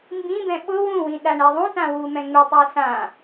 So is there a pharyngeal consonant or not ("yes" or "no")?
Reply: no